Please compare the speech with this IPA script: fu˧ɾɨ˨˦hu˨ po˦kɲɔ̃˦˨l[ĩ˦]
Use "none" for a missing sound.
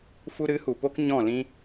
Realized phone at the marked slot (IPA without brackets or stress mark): ĩ˦